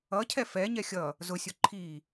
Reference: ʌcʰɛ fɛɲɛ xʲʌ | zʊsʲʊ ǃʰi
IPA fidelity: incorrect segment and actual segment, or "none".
none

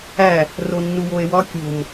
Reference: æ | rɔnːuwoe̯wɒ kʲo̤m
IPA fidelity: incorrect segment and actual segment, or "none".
ɔ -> o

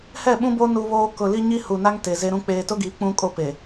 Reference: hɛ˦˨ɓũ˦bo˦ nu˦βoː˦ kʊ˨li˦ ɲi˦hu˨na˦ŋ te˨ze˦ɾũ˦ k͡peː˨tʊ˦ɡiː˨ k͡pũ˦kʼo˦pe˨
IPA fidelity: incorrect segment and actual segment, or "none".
none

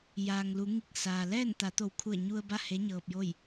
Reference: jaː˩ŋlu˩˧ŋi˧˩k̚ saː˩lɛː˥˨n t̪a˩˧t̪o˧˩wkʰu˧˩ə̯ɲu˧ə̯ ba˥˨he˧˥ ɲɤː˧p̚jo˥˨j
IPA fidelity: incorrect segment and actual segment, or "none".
none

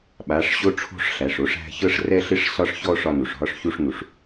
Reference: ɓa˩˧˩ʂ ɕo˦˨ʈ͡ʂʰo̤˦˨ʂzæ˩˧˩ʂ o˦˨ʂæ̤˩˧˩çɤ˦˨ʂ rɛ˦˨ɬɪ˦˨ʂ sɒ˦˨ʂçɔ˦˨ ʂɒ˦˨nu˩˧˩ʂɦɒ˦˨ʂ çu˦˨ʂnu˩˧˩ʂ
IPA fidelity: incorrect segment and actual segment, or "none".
z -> ɬ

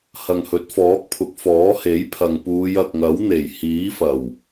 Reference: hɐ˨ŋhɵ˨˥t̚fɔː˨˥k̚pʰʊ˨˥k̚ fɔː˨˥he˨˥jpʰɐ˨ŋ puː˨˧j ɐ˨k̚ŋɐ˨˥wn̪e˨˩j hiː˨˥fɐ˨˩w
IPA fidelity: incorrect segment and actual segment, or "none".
none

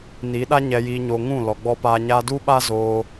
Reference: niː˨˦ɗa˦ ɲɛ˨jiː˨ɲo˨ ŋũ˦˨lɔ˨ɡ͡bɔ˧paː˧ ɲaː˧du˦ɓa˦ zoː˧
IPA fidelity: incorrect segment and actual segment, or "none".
none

